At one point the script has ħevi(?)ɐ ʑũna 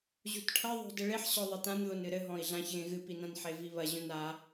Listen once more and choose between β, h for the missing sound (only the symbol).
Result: β